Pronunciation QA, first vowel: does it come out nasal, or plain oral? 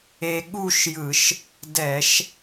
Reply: oral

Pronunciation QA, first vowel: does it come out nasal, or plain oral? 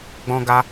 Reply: nasal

